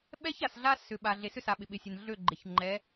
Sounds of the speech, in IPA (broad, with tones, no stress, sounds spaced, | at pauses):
ɓ ɛ˦ ç a˨ s ɮ a˦ s ʏ˨ ɓ a˨ ɮ e˨ s ʏ˦ s a˨ ɓ ɪ˨ ɓ ɪ˨ sʲ ɛ˨ n ɮ ø˦˨ ɡ͡ǃ ɪ˨ ç ŋ͡ǃ ɛ˨˦